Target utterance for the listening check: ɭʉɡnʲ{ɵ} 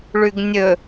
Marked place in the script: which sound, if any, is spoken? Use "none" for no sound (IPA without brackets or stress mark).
ɵ